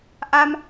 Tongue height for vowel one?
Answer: low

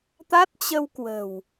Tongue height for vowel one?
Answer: low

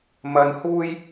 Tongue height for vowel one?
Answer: low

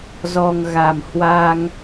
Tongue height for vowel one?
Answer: mid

